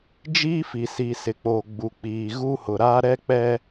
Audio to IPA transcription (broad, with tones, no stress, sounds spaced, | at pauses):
d͡ʒ iː˦ f i˨ s i˨ s ɪ˨ k͡p oː˨ ɡ͡b u˨ k͡p iː˨ ɣ u˦ h ʊ˨ ɾ aː˦ ɾ ɛ˦ k͡p ɛ˦